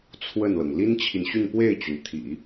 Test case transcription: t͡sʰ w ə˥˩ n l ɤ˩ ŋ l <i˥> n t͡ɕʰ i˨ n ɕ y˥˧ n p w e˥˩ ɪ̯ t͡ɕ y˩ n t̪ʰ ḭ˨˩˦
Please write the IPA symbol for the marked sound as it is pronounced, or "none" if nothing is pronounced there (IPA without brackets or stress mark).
i˥